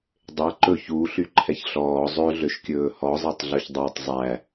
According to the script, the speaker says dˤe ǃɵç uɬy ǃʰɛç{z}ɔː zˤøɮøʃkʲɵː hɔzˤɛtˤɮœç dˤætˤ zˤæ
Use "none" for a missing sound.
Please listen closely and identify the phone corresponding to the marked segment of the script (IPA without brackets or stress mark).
ɬ